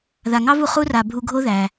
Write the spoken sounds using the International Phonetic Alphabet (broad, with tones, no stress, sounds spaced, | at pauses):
ð a˩ ŋ ɑ˥ v u˩ χ u˦ r a˩ bʱ u˨ ɡʱ o˦ ð æ˩